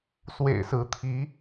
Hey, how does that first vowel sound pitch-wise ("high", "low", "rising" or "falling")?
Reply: low